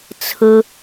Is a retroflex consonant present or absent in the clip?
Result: absent